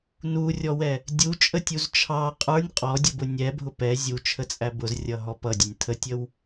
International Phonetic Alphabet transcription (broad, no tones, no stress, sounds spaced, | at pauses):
n u rʲ ɔ w ɛ | dʲ u t͡ʃʼ ə tʲ u z t͡ʃʰ ɑ qʼ ə˞ nʲ qʼ ɔ dʲ ə b ʊ nʲ ɛ bʱ ʊ p ɛ zʲ u t͡ʃʰ ə t͡sʼ æ b ʊ z rʲ ʌ ɦ ɔ p ʌ dʲ ə nʲ tʰ ə tʲ ə w